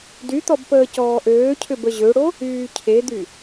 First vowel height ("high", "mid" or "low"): high